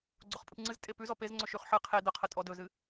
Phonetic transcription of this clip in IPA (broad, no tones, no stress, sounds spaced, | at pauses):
ɡ͡ǀ o χ pʼ ɨ p ŋ͡ǀ ɨ z tʼ e p ʉ z ɔ p e z ŋ͡ǀ ɵ ʃ ʉ χ ħ ɨ qʰ e d ə qʰ ə tʼ ɔ d ɵ z ɨ